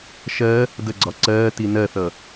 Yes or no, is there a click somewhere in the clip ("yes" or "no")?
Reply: yes